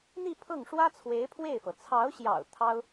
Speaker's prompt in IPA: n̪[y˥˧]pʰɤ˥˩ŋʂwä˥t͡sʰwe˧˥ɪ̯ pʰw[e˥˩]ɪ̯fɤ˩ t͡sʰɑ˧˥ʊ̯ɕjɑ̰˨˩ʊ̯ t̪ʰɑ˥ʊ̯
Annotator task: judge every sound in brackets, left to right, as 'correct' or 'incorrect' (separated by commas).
incorrect, correct